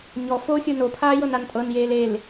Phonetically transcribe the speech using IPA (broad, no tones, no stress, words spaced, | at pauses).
ɲɔ foxʲɯ nopʰaː jɤnantʼɤnjeːl el